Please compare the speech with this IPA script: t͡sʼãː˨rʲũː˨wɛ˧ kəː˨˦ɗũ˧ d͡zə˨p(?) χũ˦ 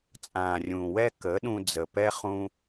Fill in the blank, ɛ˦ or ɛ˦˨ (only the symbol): ɛ˦